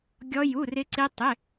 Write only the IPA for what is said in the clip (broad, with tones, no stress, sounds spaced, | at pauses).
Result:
ɡʲ ɔ˦˥ j u˧˥˧ r ɪ˦˥ ǀ i˦˥ tˤ ɪ˧˥˧